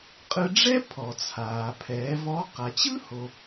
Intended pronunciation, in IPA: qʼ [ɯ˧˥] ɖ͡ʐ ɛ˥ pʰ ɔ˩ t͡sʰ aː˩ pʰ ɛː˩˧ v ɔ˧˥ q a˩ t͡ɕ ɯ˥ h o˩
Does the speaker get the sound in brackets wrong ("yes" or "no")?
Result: yes